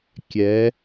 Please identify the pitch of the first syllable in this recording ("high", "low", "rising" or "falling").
rising